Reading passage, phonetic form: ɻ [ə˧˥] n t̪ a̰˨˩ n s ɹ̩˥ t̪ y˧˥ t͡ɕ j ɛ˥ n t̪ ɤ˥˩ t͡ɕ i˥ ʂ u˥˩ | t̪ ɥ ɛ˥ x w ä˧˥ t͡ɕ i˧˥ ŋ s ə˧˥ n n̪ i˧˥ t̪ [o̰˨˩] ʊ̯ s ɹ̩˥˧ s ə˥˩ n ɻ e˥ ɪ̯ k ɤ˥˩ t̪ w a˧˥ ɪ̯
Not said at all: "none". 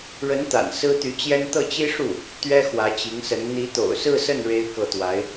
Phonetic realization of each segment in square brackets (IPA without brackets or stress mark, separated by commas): ə˧˥, o̰˨˩